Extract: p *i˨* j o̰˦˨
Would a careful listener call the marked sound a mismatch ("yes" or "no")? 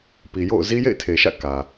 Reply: no